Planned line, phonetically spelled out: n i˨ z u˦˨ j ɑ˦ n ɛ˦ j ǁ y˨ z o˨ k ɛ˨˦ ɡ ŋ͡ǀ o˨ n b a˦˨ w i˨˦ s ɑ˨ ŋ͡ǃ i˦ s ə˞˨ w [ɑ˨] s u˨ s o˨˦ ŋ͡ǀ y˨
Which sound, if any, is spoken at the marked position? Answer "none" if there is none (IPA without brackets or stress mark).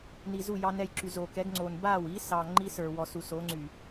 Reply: ɔ˨